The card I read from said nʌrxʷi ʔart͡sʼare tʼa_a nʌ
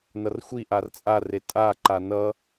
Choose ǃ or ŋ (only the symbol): ǃ